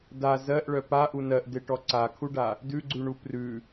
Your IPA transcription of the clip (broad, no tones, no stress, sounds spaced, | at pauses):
d a z ɜ ʔ ɭ œ p a ʔ u n ɜ ʔ d e ʈ ɔ ǀ a kʰ u ɖ a | d ʉ ɡ͡ǀ ʉ ɳ u p r ʉ